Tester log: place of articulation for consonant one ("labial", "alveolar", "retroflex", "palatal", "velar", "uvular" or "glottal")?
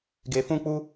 velar